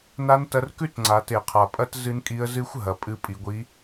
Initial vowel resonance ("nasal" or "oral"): oral